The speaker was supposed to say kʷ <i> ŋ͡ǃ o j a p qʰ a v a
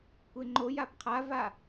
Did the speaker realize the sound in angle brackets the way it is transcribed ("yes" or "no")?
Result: no